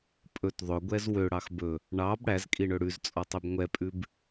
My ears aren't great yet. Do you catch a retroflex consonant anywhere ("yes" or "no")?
yes